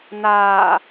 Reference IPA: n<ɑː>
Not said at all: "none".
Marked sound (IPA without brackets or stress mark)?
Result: aː